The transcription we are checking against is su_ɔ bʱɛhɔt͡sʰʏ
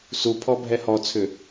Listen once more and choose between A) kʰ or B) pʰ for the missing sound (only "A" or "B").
B